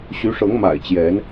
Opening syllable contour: rising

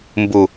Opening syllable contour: low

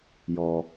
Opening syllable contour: low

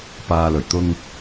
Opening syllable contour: low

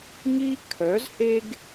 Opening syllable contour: high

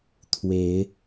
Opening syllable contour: rising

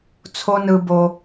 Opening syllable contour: high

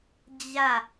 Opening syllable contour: falling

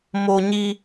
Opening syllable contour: low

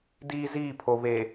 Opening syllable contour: high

